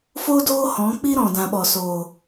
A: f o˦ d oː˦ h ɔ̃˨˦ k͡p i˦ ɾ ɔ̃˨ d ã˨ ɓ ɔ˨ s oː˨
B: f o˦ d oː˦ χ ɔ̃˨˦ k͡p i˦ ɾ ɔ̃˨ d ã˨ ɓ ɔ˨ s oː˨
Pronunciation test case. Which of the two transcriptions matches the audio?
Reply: A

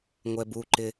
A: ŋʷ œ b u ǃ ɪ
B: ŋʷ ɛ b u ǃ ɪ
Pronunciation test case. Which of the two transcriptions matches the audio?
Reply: B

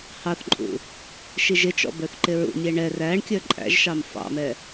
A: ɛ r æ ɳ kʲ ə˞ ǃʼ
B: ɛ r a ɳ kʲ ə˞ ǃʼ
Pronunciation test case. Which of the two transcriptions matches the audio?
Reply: A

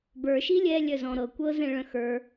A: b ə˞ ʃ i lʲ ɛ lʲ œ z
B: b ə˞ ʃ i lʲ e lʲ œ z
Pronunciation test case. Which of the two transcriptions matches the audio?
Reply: A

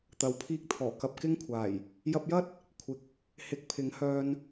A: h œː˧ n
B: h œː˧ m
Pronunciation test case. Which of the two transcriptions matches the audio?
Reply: A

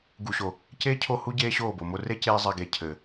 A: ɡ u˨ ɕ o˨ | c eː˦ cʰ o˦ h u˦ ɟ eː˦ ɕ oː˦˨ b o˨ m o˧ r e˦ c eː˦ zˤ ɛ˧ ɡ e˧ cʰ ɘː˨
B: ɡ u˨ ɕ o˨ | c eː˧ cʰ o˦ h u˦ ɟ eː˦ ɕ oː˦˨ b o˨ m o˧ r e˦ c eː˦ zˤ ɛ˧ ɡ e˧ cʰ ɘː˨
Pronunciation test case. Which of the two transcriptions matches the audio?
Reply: A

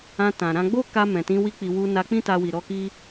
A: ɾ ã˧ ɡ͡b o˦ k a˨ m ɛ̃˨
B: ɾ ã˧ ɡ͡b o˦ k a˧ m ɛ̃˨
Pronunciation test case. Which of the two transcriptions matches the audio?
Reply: B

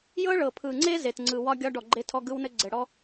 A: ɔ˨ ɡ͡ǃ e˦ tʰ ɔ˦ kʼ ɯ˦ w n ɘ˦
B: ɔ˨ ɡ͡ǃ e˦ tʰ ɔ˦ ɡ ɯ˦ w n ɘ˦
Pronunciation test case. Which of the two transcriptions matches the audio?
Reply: B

